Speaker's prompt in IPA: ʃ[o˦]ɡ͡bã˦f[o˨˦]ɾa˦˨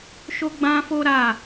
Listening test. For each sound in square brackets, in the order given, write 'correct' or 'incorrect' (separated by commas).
correct, incorrect